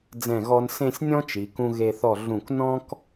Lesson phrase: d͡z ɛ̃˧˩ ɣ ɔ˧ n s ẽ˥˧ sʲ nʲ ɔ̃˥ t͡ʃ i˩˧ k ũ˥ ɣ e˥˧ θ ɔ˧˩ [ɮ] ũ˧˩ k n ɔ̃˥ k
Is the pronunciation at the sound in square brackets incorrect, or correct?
correct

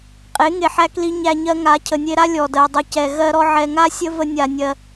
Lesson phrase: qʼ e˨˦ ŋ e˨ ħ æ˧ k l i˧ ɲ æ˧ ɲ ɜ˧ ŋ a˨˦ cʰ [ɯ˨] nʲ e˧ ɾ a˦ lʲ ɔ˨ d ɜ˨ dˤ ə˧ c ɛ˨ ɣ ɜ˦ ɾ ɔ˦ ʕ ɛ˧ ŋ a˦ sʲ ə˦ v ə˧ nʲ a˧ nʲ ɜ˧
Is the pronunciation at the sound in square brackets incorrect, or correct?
incorrect: ə˨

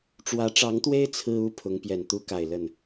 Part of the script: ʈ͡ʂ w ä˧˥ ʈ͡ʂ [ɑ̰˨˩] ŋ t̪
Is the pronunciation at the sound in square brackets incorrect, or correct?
incorrect: ɑ˧˥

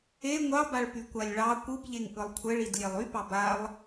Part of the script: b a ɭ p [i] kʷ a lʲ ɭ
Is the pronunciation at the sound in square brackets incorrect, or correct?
incorrect: y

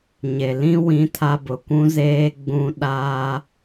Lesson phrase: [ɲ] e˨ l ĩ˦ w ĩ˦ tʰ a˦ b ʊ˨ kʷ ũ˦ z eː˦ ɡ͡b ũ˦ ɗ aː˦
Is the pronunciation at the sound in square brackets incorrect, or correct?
correct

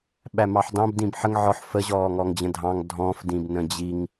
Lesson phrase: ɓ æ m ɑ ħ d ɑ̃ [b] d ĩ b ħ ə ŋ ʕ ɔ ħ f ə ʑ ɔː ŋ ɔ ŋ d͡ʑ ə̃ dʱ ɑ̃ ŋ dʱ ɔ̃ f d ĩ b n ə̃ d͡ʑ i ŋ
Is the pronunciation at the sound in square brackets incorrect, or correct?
correct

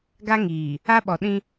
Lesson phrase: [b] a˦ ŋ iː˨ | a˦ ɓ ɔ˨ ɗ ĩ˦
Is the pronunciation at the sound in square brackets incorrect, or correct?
incorrect: ɡ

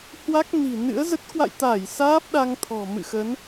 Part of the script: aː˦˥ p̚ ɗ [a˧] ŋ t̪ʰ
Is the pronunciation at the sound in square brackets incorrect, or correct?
correct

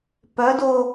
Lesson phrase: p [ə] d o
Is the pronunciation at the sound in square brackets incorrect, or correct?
incorrect: œ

